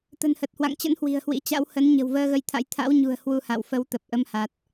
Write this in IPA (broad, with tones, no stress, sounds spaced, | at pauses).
t̪ ə̤˨˩ n h ə˨˩ t̚ h w a̰˧˨ ŋ t͡ɕ ə̰˧˥ n h w i̤˨˩ ə̯ h w ḭ˧˥ t͡ɕ a̰˧˥ w h ə˨˦ n ɲ ə̤˨˩ w v əː˧ ɣ ə˨˦ j t̪ʰ a̰˧˥ j t̪ʰ a̰˧˥ w ɲ ṳ˨˩ ə̯ h w u˧ h a̰˧˨ w f ə˨˦ w t̪ ə˨˩ p̚ ʔ ə˧ m h a˨˩ t̚